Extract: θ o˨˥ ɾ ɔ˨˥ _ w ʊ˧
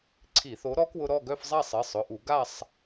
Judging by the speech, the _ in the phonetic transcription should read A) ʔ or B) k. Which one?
B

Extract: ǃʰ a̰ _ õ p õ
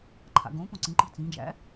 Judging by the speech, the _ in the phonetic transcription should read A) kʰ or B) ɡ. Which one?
B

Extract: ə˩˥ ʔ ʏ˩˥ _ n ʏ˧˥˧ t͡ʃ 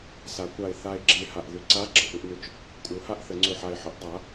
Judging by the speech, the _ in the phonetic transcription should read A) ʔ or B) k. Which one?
A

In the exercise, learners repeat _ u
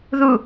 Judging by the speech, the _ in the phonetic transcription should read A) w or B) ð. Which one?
B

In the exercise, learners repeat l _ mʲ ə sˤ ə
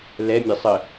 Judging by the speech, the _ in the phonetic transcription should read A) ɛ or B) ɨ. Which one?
A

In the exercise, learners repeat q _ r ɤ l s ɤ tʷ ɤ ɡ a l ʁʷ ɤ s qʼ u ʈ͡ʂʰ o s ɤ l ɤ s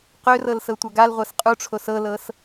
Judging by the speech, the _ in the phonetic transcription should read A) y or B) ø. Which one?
B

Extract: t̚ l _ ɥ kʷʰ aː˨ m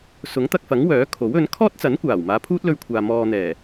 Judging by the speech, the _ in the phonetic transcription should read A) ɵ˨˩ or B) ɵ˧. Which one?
B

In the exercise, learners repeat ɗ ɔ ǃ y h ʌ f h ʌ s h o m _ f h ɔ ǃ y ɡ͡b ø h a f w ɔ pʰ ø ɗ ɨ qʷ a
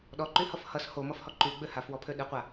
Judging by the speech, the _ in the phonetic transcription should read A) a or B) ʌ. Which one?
B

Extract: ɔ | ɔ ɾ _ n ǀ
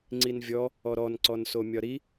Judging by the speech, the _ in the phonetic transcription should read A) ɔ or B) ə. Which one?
A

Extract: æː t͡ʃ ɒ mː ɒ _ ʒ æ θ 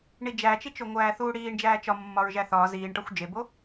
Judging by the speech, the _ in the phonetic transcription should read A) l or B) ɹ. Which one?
B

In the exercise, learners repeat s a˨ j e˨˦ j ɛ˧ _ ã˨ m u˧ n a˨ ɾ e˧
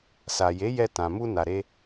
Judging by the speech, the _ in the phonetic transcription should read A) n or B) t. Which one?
B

